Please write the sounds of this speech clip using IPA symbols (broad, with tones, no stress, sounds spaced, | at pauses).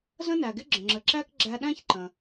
z ə̃˥ n æ˩ ɡ ɪ˥ ɡ͡ǁ ə̃˩ ŋ͡ǁ ə˩ ǁ æ˥ k ɡ͡ǁ æ˧ ɗ æ̃˥ ç ǃ ə̃˩